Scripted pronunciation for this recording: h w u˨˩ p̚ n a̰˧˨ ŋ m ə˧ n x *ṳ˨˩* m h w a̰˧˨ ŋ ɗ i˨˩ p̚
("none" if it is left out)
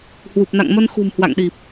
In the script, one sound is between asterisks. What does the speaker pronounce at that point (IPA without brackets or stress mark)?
ṳ˨˩